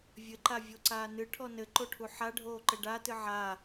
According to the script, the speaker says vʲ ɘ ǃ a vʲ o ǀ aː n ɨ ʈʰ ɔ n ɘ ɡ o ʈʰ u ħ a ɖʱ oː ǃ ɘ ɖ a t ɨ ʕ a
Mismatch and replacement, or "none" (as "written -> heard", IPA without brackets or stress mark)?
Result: ɡ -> ǃ